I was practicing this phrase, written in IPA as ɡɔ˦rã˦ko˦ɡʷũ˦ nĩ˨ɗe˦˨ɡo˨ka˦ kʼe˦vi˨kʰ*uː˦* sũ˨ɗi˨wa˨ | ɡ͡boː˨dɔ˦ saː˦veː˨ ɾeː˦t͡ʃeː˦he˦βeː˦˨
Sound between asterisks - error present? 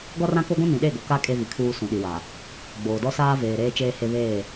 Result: no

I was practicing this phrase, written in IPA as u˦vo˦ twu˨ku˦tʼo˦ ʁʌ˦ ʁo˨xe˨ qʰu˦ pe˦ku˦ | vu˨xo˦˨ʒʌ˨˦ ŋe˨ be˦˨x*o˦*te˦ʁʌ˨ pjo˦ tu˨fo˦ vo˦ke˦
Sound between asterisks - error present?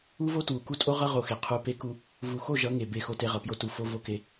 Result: no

